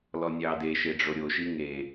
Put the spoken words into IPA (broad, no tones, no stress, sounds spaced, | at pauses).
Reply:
l ɔ nʲ ɑ d e ʃ e ɖ͡ʐ o ɾʲ o ʃ i ŋ e